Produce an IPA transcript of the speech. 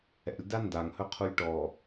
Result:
ɛ̰ lʲ d a n d a ŋ h ɵ qʰ u lʲ ʈ ɔ

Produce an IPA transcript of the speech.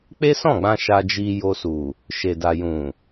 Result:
k͡p e˦ s ɔ̃˦˨ ɡ͡b ã˧ ʃ a˧ d͡ʒ i˧ j o˧ s u˨ | ʃ e˨ d a˨ j ũ˨

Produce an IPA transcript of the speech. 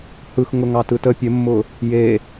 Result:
h ɯ x ŋ ʊ ŋ ɑ t ɯ t ə pʲ ə mː ʊ | j e

